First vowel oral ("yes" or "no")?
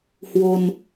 yes